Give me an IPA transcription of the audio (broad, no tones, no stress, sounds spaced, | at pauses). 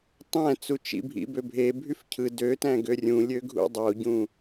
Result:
tˤ æ̃ t͡s u t͡ʃ ḭ bʱ ḭ b ø bʱ e bʱ y f cʰ ɯ d ø t æ̃ ɡ ø rʲ ũ lʲ ø ɡʱ ṵ dˤ o ɟ ũ